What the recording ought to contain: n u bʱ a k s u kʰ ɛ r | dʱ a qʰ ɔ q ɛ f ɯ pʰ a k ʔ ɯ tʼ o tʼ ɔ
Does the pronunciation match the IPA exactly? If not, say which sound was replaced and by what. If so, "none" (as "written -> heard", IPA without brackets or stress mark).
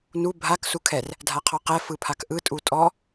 o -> u